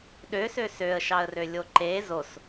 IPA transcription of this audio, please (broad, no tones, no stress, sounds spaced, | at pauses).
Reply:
ɗ ø s ø s ø ə̯ ʃ ɑ ə̯ r ø lʲ o ǃ e z o s